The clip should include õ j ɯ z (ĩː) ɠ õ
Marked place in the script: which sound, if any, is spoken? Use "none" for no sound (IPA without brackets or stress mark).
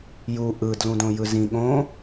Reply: ĩ